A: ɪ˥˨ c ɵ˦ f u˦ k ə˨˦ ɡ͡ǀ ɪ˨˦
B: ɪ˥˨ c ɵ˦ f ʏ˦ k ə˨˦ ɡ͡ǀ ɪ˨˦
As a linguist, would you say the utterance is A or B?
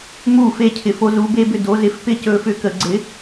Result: B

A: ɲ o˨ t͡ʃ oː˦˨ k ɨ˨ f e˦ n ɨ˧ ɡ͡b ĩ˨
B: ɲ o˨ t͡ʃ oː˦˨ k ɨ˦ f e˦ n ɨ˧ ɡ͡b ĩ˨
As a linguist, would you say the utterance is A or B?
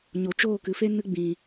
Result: A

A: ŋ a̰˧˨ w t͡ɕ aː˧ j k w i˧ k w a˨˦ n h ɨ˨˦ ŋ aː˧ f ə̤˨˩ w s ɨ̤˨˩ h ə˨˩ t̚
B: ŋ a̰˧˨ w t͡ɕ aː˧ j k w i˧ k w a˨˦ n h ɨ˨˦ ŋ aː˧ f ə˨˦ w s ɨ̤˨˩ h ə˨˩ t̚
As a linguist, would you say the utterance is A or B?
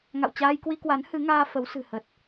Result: B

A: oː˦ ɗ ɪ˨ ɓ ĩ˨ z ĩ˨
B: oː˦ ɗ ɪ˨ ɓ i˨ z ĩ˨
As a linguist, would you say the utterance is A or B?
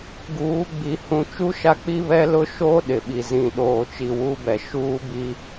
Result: B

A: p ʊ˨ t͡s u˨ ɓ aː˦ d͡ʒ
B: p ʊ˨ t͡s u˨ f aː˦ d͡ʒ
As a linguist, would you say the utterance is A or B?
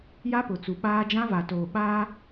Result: A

